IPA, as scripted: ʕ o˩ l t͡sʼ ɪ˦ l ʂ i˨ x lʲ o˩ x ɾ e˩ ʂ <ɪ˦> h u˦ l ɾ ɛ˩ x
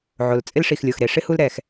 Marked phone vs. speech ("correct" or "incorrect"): correct